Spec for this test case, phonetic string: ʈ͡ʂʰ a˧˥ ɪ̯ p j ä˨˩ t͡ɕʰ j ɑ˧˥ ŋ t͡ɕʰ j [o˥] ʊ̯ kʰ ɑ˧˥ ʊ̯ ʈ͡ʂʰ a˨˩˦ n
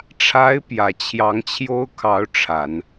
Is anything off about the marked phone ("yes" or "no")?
no